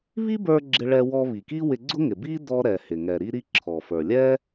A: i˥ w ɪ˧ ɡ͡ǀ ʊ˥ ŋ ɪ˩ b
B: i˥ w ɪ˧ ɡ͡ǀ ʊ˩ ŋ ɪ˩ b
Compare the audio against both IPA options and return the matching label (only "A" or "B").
A